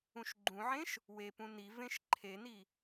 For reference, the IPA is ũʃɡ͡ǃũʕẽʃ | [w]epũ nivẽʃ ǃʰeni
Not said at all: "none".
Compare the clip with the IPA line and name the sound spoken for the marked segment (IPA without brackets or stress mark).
w